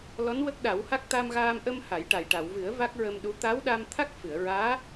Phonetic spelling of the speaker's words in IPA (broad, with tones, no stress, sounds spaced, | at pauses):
l ɔ˧˥ n w ə˦˥ k̚ ɗ a˨˩˦ w h a˦˥ k̚ t̪ a˧ m ɣ aː˧ m ʔ ə˧ m h a˨˩˦ j ʈ a˨˩ j ʈ a˨˩˨ w v ɨ˨˩˦ ə̯ v a˦˥ k̚ ɹ ə˧ m ɗ u˧˥ t̪ a˧˥ w ɗ a˧ m t̪ʰ a˦˥ k̚ f ɨ˨˩˨ ə̯ ɹ aː˧˥